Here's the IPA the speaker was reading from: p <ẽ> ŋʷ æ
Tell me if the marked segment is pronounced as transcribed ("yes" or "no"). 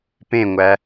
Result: yes